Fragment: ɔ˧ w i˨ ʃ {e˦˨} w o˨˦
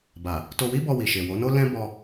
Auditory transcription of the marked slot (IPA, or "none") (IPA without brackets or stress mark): e˨